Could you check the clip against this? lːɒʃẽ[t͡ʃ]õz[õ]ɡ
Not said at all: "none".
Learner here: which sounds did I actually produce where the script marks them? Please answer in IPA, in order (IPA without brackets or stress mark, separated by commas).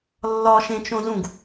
t͡ʃ, ũ